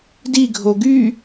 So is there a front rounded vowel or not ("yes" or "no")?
yes